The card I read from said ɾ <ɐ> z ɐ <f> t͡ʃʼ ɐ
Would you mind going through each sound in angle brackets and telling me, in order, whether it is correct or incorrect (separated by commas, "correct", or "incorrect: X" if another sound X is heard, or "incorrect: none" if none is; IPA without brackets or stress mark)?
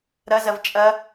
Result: correct, incorrect: v